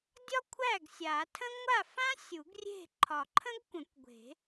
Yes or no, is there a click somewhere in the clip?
yes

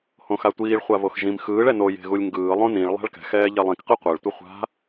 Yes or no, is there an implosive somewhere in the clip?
no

